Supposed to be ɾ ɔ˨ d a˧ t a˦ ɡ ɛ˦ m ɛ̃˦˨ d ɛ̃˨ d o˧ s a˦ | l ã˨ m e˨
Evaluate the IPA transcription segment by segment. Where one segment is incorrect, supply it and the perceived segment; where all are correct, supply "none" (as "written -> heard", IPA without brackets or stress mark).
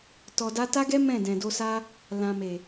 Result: ɾ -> t